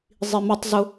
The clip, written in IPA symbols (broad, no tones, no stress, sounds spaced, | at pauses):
zˤ i m ɐ tˤ z ʊ